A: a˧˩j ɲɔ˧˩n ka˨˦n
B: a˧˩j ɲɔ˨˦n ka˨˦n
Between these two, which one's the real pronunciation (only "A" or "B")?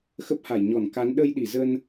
A